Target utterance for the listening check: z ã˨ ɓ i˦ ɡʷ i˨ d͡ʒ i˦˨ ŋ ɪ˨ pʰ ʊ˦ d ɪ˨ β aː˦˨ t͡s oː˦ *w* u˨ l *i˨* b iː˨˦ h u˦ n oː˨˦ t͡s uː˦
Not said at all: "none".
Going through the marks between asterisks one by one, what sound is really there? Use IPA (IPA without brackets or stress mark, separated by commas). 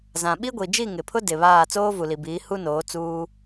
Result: v, i˨